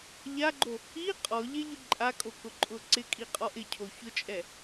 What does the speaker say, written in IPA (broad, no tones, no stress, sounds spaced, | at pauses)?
ʎ a ɡ͡ǃ o | i qʼ ɔ ʎ ɛ ʎ ʊ ǃʼ a kʼ o k ʊ ǃʼ ʊ ǀ ɪ kʼ i qʼ ɔ ʔ ɪ cʰ o ç ʊ t͡ʃʼ ɛ